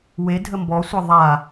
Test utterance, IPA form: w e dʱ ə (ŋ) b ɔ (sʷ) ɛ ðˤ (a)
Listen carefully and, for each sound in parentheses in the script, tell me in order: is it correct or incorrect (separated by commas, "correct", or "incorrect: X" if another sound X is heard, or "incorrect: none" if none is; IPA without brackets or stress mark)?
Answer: incorrect: m, correct, correct